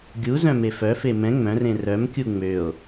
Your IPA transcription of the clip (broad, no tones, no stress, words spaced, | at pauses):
ɡʲu zœ̃mefœfe mɛ̃ ŋ͡mœ̃rẽ rœmkʲu ŋ͡møo̯